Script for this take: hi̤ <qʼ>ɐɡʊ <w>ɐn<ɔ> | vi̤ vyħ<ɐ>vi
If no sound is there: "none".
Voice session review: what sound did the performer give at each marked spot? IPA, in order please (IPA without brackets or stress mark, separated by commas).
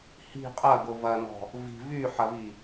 qʼ, v, ɔ̤, ɐ